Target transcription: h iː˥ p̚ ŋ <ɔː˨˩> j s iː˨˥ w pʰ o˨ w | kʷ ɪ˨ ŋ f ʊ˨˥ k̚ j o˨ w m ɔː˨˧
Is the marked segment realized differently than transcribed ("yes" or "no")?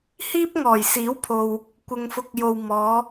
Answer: no